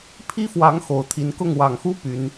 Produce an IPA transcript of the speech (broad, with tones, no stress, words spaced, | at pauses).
pʰi˦fwɑ˨˦ŋ xo˨˩ʊ̯t̪ʰi˨˦nkʊ˥˨ŋ wɑ˨˩ŋxu˦ py˨˦n